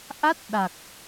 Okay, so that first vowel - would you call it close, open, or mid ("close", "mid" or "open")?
open